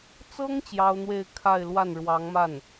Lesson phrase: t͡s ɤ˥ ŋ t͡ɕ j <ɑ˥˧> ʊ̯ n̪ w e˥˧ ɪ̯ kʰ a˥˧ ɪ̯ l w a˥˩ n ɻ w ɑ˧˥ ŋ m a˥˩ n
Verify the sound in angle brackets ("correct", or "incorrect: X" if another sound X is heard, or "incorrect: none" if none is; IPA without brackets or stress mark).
incorrect: ɑ˥